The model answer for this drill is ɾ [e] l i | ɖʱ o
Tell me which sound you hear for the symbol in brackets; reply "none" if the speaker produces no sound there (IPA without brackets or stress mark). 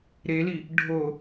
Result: e